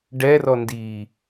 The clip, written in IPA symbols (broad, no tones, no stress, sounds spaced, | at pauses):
ɖ ɛ r ɔ n d i